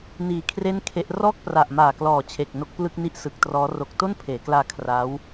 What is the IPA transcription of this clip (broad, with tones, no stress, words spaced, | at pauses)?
niː˨˩kʰre˥˩n kʰe˦˥ʔ rɔː˥˩k̚pra˨˩ʔmaː˨˩klɔː˨˩ t͡ɕʰe˨˩k̚no˦˥k̚plɯ˥˩k̚ni˥˩ʔ sɯ˨˩k̚trɔː˦˥ ro˨˩k̚to˥˩n pʰeː˩˦klaː˧ kʰra˦˥w